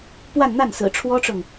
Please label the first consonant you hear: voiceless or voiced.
voiceless